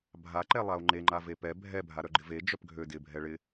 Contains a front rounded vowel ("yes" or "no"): yes